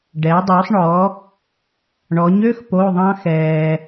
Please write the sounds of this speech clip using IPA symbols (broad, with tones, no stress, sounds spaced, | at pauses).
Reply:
ɖ ɛ˨˥ dˤ u˨˥ sˤ ɳ ɔ˨˥ | ɳ ɔ˨˥ ɲ ø˧˥˧ x p o˧˥˧ ðˤ ɑ̃˥ x ɛː˧